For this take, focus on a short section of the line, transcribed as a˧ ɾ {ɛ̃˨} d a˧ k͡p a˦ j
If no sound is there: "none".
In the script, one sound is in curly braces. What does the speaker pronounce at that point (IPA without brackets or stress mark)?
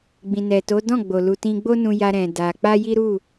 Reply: ɛ̃˨